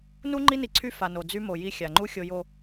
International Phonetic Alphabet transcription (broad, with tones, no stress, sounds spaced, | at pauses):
n u˦ ŋ͡ǃ i˦ n i˨ ǀʰ y˦ f a˨ n o˨ d͡z y˦ m o˨ j i˦ xʲ a˨ ŋ͡ǃ u˦ xʲ o˨ j o˨